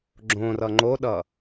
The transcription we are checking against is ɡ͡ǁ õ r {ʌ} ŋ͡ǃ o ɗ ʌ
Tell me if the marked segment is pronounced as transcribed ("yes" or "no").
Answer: yes